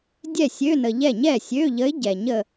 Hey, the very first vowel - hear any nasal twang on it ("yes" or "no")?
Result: no